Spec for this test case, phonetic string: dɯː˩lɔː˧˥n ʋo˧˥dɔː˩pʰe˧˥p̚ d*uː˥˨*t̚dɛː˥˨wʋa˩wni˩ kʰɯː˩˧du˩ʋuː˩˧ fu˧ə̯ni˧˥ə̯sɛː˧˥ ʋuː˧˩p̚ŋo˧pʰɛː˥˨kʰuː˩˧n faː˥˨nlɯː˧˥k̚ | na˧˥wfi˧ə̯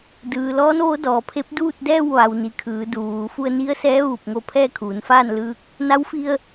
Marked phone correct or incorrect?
correct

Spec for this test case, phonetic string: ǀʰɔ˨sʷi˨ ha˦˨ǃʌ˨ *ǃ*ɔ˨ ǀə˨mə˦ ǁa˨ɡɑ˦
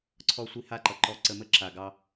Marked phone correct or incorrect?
correct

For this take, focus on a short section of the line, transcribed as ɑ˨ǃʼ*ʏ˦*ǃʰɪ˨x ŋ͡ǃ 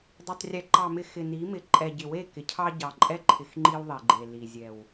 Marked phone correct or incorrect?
incorrect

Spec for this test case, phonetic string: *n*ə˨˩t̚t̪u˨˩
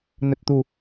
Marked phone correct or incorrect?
correct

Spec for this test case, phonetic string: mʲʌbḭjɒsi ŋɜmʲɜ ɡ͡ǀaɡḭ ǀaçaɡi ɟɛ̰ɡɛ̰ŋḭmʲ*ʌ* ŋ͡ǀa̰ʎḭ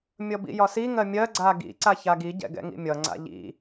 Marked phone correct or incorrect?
correct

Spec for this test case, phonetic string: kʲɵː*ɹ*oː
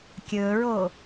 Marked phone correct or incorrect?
correct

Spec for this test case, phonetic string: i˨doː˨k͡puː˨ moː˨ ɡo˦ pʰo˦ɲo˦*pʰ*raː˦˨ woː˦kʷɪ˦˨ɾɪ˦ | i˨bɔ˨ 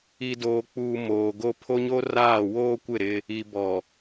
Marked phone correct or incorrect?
incorrect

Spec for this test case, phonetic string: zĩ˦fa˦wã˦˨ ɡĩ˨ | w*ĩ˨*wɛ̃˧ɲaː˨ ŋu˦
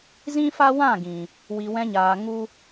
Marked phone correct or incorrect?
incorrect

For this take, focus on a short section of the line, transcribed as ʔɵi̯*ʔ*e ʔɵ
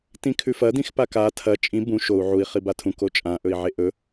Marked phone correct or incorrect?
incorrect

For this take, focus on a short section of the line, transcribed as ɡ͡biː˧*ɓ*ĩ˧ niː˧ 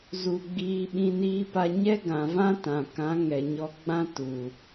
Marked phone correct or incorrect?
correct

